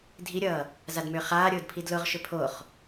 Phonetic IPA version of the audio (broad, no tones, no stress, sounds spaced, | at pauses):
dʱ i ɾʲ ʌː | z a d m ʏː χ aː ɾʲ ʊː d pʰ i d l ʊ ʁ ʃ ʏ pʰ o χ